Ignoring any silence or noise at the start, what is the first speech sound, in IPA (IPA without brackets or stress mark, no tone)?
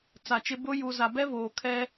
t͡s